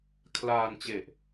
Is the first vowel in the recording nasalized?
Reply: no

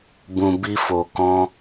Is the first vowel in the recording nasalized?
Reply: yes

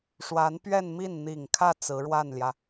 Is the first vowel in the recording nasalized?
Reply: no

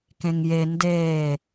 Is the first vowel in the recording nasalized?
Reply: yes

